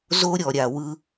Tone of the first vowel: high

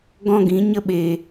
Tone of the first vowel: high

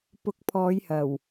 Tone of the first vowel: rising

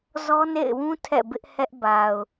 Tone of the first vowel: high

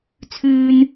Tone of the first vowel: high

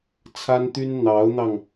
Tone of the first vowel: high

